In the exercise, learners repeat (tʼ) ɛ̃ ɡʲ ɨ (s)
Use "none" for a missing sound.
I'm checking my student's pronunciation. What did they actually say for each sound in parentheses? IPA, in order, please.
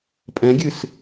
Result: pʼ, s

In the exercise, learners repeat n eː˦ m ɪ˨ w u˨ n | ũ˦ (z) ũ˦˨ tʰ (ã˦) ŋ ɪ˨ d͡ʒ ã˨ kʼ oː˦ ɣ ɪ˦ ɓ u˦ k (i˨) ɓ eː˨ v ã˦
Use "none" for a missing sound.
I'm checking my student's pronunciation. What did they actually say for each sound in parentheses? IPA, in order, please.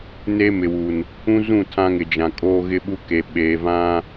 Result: z, ã˦, e˨

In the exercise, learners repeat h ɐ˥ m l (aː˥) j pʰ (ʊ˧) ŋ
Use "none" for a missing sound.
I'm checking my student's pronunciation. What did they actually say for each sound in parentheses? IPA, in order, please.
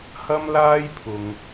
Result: aː˥, ʊ˧

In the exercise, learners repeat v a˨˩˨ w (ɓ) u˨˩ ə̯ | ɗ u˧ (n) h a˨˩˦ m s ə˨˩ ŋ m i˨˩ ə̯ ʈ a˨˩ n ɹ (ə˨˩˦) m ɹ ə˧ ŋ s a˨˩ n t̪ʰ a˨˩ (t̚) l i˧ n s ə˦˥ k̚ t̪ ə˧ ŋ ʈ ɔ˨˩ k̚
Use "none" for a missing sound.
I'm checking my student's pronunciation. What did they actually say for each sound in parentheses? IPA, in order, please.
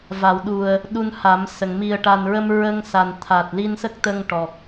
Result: ɗ, n, ə˧, t̚

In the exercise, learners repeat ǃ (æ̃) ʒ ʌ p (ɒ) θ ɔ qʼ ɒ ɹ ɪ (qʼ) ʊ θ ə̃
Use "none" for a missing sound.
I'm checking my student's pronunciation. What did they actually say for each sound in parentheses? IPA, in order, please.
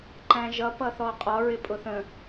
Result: æ̃, ʌ, pʼ

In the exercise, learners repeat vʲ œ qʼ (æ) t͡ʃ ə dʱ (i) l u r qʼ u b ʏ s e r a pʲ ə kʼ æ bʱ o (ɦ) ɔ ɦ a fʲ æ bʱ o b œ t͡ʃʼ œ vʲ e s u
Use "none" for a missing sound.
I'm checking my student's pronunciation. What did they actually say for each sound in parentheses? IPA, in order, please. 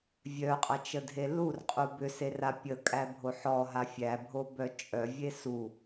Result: ɐ, e, ħ

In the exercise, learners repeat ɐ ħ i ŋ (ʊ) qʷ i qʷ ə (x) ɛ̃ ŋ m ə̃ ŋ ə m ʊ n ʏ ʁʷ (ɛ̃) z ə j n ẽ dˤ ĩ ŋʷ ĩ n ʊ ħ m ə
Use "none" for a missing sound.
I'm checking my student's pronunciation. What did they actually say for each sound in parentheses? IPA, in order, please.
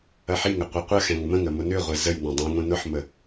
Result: ə, x, ɛ

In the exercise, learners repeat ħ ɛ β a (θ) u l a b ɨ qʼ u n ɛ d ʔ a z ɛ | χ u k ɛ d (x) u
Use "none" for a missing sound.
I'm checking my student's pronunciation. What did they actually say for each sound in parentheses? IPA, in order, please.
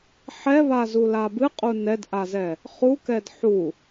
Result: z, ħ

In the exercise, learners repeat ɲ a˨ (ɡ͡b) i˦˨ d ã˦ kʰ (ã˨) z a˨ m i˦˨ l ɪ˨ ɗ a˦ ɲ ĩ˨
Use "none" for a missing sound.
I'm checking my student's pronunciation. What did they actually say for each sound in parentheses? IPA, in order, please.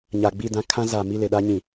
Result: ɡ͡b, ã˦

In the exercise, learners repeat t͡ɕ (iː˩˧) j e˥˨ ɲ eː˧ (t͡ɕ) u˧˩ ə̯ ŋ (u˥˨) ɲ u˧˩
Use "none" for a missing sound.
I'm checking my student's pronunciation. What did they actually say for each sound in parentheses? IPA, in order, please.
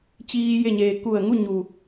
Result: iː˧, k, u˥˨

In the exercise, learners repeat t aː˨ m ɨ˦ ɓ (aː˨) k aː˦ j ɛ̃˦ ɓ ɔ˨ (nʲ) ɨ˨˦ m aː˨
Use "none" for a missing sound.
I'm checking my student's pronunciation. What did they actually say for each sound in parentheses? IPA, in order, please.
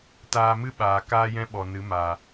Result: aː˨, n

